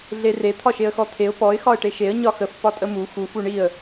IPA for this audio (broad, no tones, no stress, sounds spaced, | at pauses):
ɮ e r e t̪ʰ ɒ ʃ e ə̯ x ɔ t̪ʰ e ʊ̯ p ɔ ɪ̯ x ɒ ə̯ ʈ e ʃ e ə̯ ɲ ɒ x ə f p ɒ tʼ ə m u x u f u ɳ i ə̯